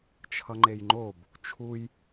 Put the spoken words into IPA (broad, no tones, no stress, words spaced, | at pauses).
t͡ʃʰʌŋ͡ǃejŋ͡ǃob | t͡ʃʰuj